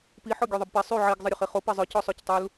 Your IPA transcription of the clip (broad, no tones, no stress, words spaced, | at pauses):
pi ħɔɡʲøðˤəbpɛ sˤy ʕiɡ zˤəɾʲøχiχo pezˤœ cɔsˤøctˤul